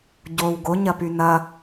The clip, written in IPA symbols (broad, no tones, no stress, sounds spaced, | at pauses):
ɟ o w ɡ o ɲ ɐ p y n ɐ